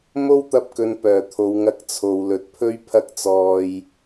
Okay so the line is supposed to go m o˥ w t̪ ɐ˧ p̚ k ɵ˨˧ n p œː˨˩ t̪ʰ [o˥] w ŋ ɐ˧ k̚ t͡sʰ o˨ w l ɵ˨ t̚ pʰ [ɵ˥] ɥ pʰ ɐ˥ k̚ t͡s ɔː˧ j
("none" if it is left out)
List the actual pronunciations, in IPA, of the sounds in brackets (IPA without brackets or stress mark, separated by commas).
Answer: o˨˧, ɵ˥